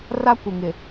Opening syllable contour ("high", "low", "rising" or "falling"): high